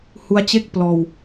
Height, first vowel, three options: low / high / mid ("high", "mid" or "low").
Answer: high